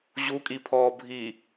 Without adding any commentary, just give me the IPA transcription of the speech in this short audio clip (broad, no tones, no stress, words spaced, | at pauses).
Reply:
ʑukʼipʰɔː bʱi